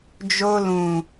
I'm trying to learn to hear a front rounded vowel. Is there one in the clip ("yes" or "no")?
no